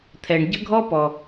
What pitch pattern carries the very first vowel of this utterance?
low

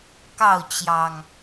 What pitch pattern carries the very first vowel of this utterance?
falling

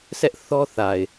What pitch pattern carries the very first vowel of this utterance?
high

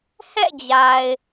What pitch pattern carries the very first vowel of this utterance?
falling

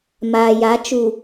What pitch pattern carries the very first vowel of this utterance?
low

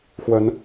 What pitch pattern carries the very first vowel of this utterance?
rising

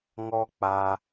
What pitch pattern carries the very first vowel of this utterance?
high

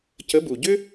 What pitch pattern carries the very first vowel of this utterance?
rising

